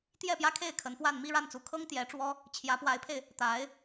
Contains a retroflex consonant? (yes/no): yes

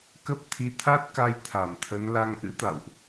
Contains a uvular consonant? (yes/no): no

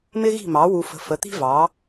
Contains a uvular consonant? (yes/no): no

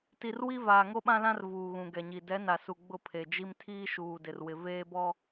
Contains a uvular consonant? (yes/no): no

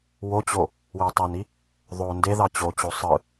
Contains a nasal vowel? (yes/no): no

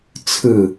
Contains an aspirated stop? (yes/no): yes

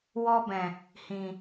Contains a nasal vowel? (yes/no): yes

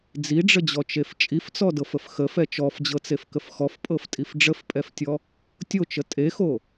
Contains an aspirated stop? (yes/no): no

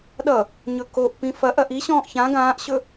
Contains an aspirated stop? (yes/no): no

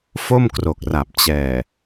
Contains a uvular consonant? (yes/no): no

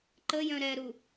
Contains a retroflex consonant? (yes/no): no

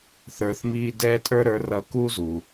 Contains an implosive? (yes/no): no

